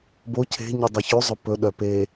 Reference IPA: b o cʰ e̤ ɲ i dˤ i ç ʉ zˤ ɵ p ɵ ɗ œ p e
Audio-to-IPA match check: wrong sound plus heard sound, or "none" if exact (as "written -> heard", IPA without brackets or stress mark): none